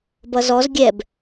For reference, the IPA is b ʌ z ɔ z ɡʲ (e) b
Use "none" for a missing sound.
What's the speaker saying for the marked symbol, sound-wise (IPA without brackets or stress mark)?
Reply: ɛ